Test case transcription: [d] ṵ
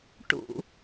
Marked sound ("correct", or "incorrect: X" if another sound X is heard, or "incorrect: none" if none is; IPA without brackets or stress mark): incorrect: ʈ